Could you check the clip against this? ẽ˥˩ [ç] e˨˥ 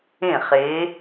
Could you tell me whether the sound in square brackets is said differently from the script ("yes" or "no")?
yes